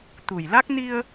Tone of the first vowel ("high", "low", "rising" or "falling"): low